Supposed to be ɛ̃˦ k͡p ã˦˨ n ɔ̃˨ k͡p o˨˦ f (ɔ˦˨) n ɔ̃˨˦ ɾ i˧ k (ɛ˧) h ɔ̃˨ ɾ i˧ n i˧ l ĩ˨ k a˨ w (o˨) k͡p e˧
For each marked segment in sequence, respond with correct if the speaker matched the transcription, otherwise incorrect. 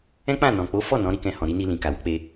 correct, incorrect: ɛ̃˧, incorrect: o˧

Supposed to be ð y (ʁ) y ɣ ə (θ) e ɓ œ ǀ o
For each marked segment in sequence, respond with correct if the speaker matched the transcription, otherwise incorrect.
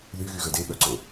incorrect: ɣ, incorrect: d

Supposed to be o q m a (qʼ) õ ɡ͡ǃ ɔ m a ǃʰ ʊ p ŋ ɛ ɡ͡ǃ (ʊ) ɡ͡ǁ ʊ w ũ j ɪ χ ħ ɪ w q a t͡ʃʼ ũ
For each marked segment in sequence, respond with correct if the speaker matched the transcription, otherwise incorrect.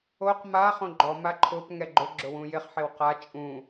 incorrect: χ, correct

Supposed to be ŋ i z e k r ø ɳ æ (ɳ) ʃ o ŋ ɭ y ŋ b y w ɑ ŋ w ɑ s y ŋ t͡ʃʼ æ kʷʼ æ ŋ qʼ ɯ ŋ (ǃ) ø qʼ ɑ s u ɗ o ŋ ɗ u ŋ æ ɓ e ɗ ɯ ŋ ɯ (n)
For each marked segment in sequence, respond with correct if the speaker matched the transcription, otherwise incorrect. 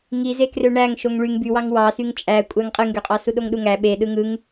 incorrect: ŋ, incorrect: ɡ, incorrect: ŋ

